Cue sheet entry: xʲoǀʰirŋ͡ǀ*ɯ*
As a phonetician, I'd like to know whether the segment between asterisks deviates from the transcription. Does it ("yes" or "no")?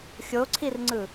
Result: no